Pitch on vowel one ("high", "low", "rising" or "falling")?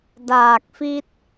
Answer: low